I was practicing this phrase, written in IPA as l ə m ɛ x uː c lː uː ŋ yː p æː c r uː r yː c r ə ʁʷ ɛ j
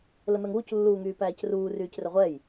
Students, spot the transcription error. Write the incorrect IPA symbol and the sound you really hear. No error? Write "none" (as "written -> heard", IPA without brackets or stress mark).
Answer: x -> ŋ